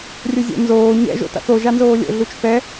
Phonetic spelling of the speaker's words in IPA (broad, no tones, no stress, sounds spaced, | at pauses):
rʲ ɵ zʲ o̰ n z oː ɲ ɛ̰ ʒ o̰ t a̰ θ o ʒ a n z oː lʲ o̰ ɮ u t͡ʃ θ ɛ